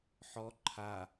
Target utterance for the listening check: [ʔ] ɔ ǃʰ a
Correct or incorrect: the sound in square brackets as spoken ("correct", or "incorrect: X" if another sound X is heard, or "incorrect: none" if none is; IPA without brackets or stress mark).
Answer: incorrect: ħ